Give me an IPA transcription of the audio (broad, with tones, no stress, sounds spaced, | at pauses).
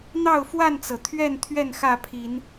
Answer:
n̪ ɑ˥˨ ʊ̯ f w a˥˨ n t͡s ɤ˩ t̪ʰ ɥ ɛ˥˨ n t̪ʰ ɥ ɛ˥˨ n x ä˥˨ pʰ i˨˦ n